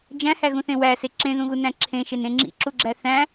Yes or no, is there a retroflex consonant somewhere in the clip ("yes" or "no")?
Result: no